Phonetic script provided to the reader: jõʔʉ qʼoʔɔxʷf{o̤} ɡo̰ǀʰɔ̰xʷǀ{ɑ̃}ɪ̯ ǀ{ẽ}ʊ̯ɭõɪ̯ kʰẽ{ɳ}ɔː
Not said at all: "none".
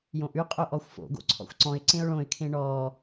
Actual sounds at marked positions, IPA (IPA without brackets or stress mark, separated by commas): o̰, ɔ̃, ẽ, ɳ